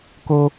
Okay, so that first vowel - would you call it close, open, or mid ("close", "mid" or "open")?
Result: mid